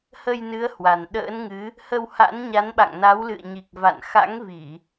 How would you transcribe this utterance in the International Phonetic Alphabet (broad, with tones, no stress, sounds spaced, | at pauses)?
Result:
h ə˧ j n ɨ˨˦ ə̯ h w a˨˩ n ɗ ə̰ː˧˥ n ŋ ɨ˨˦ | h ə˧ w h a̰˧˥ n ɲ a˨˦ n ɓ a̰˧˨ ŋ n a˨˦ w l ɨ̰˧˨ ə̯ ɲ i˨˩ k̚ v a̰˧˨ n x a̰˧˥ ŋ v i˧˩˨